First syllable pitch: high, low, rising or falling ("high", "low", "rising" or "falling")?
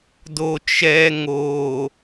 low